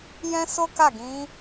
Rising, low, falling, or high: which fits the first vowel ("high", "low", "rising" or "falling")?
high